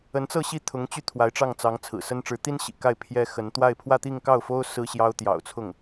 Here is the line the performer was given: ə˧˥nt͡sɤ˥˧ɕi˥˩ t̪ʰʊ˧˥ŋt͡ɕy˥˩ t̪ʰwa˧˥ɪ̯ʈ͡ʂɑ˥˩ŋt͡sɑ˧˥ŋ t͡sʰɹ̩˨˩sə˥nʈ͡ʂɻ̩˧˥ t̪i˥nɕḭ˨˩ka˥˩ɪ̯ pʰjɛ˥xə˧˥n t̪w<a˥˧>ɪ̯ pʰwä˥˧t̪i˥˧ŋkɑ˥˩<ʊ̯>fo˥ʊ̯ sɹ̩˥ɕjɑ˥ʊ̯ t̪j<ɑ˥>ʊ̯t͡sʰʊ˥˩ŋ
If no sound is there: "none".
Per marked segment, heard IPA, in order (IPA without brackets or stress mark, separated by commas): a˥˧, ʊ̯, ɑ̰˨˩